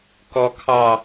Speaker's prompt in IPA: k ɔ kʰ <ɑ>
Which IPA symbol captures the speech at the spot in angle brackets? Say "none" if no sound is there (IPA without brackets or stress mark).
ɑ